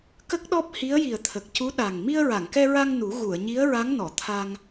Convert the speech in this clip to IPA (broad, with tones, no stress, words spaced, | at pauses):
kə˦˥k̚ɗɔ˦˥p̚ hi˧˥ə̯ji˨˩ə̯t̪ʰə˨˩k̚cu˧˥ ɗa˨˩ŋ mi˧ə̯ɹa˨˩˨ŋkɛ˧ɹa˧ŋ nu˨˩˦ ɣu˨˩˨ə̯ɲi˧˥ə̯ɹa˧˥ŋ nɔ˨˩˨t̪ʰa˧ŋ